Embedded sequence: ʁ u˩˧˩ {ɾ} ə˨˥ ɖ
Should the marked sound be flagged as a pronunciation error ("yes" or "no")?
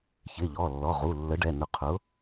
yes